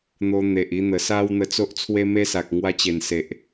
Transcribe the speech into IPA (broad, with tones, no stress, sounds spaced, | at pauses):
n̪ o˧ n̪ e˨ ʔ i˧ n̪ ə˨˩ s a˦ w n̪ ə˧ t͡s o˦ ʔ t͡sʰ w e˦ m e˦ s a˨ k̚ ŋ w a˧ t͡ɕ e˨˩ n s e˨ ʔ